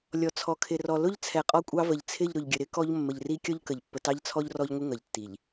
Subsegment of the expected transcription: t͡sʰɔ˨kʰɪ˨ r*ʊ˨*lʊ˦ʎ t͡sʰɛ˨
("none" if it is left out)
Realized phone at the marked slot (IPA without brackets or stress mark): ɔ˨